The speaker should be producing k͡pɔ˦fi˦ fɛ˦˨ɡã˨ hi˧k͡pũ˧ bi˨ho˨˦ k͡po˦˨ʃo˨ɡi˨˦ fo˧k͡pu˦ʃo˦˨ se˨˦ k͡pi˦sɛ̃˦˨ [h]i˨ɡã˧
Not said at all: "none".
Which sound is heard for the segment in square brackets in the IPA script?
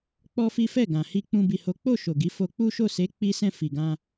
f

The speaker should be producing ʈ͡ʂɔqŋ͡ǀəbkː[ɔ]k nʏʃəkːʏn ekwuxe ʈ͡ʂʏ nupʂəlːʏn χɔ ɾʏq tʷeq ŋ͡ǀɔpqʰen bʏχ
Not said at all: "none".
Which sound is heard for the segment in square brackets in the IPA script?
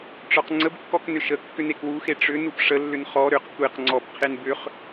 ɔ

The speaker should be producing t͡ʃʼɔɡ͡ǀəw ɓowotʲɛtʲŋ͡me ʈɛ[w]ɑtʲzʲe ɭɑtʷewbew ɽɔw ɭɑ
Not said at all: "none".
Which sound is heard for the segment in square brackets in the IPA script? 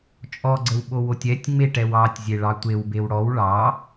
w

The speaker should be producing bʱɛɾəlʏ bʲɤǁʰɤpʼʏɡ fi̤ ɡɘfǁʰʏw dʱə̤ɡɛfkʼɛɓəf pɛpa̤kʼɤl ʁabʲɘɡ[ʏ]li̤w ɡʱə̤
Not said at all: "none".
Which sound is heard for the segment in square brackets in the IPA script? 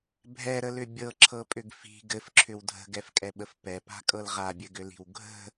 ʏ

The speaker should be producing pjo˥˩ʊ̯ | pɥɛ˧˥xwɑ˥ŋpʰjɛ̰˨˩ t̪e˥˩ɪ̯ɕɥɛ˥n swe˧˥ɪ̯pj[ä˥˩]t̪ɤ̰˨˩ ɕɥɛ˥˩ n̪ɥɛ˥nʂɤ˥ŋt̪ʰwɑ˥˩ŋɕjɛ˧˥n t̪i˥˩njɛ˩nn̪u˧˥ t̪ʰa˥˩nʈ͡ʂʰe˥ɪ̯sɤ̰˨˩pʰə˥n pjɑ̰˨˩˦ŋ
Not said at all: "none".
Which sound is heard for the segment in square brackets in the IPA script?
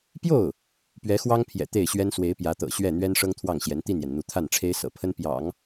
ä˧˥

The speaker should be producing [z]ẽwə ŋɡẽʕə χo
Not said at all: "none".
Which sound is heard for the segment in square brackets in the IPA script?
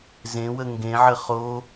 z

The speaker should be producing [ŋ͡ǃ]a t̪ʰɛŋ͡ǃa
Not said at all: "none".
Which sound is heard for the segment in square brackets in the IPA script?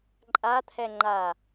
ǃʼ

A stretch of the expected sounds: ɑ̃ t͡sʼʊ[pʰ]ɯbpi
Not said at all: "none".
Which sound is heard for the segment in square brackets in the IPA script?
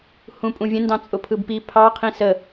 pʰ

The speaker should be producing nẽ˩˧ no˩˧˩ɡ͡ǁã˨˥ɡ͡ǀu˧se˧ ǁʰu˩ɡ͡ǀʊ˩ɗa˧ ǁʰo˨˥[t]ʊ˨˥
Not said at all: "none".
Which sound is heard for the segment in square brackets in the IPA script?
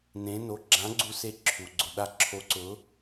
ǀ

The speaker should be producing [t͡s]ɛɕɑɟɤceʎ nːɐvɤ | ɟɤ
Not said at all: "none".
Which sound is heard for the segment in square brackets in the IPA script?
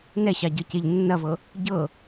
n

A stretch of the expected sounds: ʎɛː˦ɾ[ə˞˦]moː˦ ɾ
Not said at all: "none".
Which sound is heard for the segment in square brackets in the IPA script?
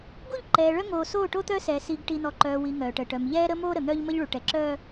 ə˦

